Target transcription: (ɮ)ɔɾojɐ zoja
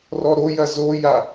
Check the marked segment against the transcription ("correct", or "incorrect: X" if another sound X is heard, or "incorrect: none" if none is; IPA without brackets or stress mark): incorrect: r